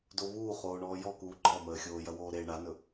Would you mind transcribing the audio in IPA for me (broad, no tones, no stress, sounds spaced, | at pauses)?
d o β uː χ oː ɳ ɔː j ɔ k uː ɡ͡ǃ ɔ m əː xʲ oː j ɐ w oː ɾ e ɳ a n ɵ